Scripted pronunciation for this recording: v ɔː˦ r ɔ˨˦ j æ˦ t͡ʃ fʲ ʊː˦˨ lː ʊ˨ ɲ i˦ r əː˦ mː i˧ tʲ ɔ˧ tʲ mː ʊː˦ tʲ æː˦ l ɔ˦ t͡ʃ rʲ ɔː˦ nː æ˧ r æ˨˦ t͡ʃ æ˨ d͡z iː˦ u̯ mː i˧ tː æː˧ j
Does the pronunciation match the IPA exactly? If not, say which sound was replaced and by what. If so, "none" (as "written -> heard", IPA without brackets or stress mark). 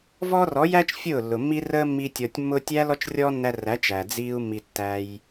ɲ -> mː